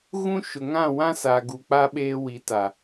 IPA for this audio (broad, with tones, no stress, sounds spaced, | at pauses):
ɣ ũ˦ ʃ ʊ˨ ŋ ã˦˨ w ã˦ s a˨ ɡ u˨ k͡p a˦ ɓ eː˦ w i˨˦ t a˨